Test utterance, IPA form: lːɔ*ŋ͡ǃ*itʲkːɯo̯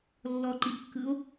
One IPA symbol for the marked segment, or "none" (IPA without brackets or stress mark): ǃ